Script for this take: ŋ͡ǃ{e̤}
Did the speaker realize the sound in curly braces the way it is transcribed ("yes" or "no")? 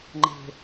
yes